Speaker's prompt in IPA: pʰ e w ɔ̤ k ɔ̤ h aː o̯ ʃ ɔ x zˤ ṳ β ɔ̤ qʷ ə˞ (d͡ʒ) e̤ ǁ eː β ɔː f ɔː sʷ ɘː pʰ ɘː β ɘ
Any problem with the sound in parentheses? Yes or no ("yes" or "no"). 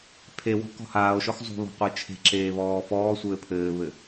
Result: yes